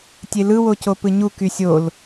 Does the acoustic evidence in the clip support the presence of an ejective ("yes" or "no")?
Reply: no